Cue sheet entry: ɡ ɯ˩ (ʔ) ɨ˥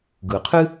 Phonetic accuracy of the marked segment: incorrect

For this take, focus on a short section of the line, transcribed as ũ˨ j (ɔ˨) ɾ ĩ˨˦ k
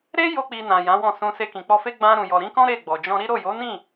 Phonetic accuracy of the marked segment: correct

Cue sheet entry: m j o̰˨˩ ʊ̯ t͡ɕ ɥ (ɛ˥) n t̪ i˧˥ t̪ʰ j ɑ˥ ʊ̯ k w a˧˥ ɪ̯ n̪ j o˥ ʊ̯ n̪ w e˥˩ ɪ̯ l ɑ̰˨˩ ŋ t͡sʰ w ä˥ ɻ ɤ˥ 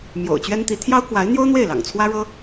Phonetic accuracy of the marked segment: correct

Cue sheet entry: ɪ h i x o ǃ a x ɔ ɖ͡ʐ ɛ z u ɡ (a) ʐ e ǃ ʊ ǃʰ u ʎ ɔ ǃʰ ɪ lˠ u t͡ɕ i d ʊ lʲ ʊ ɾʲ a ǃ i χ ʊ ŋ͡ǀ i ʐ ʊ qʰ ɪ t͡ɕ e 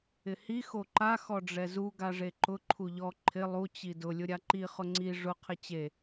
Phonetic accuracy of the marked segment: correct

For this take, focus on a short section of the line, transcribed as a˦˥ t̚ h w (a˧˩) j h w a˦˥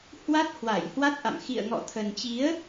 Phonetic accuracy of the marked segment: correct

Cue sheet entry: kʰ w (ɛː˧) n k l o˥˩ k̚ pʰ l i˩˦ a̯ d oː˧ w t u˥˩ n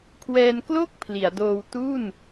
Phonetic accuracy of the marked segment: correct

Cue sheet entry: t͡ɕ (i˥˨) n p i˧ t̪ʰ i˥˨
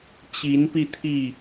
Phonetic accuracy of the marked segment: incorrect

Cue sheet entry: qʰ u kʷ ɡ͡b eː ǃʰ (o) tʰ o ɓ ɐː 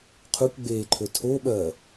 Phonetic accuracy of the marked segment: incorrect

